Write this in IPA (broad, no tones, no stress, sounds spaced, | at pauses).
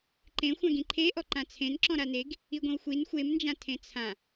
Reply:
ǃ ẽ xʷ ã ɡ ĩ ǃʰ e ʔ ɔ ǃ ã t͡sʰ ẽ n ǁ ɔ̃ ɾ a n e ɡ | i ɡʷ ĩ w xʷ i n xʷ e m n d͡ʒ ã tʰ ẽ t͡sʰ ã